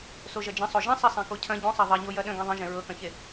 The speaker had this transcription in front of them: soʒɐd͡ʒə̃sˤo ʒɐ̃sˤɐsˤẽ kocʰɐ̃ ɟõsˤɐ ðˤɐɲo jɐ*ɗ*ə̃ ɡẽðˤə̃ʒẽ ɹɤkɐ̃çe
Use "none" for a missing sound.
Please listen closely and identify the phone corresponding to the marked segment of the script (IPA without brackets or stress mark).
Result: ɗ